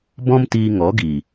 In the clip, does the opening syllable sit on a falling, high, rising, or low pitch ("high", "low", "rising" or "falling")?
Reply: high